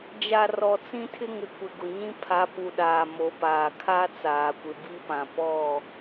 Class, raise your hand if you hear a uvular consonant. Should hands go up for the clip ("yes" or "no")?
no